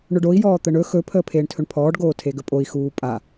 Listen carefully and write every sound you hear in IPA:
ɳ ɵ ɖ o i̯ j ɔː t̪ ə ɳ ɵ x ɵ pʰ əː pʰ eː ɳ tʰ ɵ ɳ pʰ ɔː ɖ ɡ oː tʰ e ɡ ə pʼ o i̯ x uː pʼ a

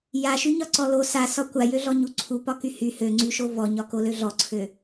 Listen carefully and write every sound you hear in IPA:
j a ʃ y ɲ ɒ ǀ ɔ l o s a s ɒ kʷ a j ø ɮ ɔ ɲ u ǀʰ u p ɒ k y h y h ø ŋ͡ǀ y ʃ o v ɔ ɲ ɒ k o l ø ɮ ɔ ǀʰ ø

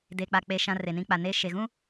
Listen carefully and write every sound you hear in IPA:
d eː˨ k͡p a˨ k͡p e˨ ʃ ã˦ r e˨ n ĩ˦ k͡p a˨ n eː˦ ʃ e˨ ɣ ũ˦

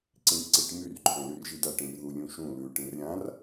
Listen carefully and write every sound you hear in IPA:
ǀ ĩ ʈ ǀ i ʈ m y r ǃʰ œ̃ l y r ʒ i d a ʈ ĩ r ð u lʲ ũ ʃ ũ l ʉ ʈ ĩ r ɾʲ ã r

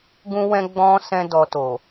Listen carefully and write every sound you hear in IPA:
ɡ ũ˦ w ɛ̃˦ ɡ͡b ɔ̃˦ s ɛ̃˦ d ɔ˧ t o˨

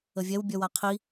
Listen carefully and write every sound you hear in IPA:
ə vʲ ɛ w bʲ œ w a qʰ i

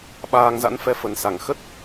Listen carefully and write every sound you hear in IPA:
ɓ aː˧ ŋ z a̰˧˥ n f ɛ˧ f ə˨˩ n s a˧˩ ŋ x ə˦˥ t̚

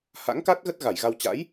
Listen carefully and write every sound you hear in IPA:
h a̰˧˥ ŋ k a˦˥ t̚ ɣ ə˦˥ t̚ ɣ a˧˩ j ɣ a˧ w t͡ɕ a̰˧˥ j

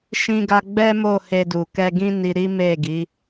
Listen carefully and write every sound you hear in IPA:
ʃ ĩ˧ ɡ a˧ ɡ͡b ɛ˦ m o˦˨ h e˧ d u˨ k ɛ˧ ɡ ĩ˦ n i˧ ɾ i˦ m e˦˨ ɡ i˨˦

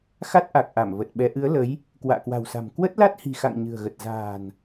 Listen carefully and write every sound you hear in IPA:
x a˦˥ t̚ ʔ a˨˩ k̚ ʔ a˧˩ m v ə˨˩ t̚ ɓ ɛ˨˦ ʔ ɨ˨˦ ə̯ l ə˨˦ j | k w a̰ː˧˨ k w a̤˨˩ w s a̤˨˩ m k w ə˦˥ t̚ l a˦˥ t̚ h i̤˨˩ x a̰˧˨ ŋ ɲ ɨ̤˨˩ ə̯ ɣ ə˨˩ t̚ z a̤ː˨˩ n

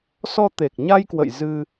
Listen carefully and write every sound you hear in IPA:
s ɔ˧ t̪ e˨˩ k̚ ɲ a˧ j k w ə̰˧˨ j z ɨ˧

